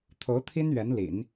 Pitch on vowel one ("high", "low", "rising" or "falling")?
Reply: rising